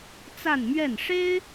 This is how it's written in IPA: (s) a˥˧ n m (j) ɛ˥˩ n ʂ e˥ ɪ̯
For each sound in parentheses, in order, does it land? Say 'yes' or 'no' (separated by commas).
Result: no, no